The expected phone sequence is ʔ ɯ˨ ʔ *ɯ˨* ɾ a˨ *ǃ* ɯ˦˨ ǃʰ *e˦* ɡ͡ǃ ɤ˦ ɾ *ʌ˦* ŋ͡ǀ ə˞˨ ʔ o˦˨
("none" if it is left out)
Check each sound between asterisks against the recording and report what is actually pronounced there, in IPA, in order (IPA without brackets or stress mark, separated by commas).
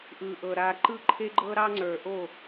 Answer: ɤ˨, ǃ, e˦, ɑ˦